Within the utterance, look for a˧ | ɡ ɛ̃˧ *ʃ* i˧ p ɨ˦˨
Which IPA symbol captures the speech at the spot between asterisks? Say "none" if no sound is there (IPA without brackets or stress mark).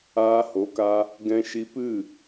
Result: ʃ